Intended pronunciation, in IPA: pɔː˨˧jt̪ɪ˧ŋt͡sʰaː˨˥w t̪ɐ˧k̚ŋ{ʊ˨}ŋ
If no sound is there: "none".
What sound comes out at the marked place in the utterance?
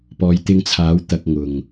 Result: ʊ˨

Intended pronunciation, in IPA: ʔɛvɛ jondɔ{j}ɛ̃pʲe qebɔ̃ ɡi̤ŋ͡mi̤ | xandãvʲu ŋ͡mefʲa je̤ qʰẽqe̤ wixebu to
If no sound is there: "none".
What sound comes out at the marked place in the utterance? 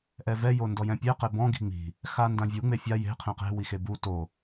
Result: j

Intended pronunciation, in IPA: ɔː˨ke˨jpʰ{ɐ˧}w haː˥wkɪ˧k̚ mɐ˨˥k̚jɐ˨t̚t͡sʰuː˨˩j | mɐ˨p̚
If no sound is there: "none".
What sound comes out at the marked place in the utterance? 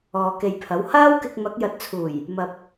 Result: ɐ˨˥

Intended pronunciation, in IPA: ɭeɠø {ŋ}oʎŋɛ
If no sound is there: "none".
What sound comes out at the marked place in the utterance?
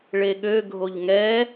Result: ɡʱ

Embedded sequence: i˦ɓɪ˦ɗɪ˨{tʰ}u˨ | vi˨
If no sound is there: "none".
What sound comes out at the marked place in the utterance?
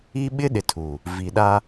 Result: tʰ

